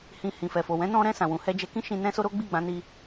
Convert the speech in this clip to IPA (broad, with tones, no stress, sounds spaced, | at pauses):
h ĩ˨ h ĩ˨ f ɛ˨ f o˨ w ɛ̃˨˦ n ɔ̃˧ ɾ ɛ̃˧ s ã˨ w ũ˨ h ɛ˧ d͡ʒ ɛ˧ k ĩ˦ ʃ ĩ˧ n ɛ̃˦ s o˦ ɾ o˦ ɡ͡b i˦˨ ɡ͡b ã˨˦ n i˧